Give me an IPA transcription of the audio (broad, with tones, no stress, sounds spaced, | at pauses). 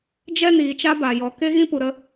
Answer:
d͡ʒ ɛ˦ n iː˨ t͡ʃ a˧ b a˨ j ɔ˨ k e˦ ɣ ĩ˦ p u˧ ɾ ə˦